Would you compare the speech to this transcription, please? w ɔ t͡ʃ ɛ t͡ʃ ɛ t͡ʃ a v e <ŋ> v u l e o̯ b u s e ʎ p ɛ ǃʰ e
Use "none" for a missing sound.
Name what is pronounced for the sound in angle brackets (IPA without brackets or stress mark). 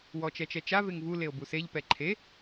ŋ